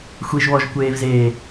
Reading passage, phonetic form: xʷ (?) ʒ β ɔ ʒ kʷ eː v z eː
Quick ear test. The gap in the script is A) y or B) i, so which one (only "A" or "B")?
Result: B